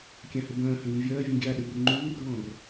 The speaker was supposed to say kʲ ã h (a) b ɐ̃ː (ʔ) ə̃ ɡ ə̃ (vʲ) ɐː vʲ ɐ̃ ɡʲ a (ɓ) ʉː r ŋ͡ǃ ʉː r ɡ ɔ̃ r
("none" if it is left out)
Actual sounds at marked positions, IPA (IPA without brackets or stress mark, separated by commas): ə, h, vʲ, ɗ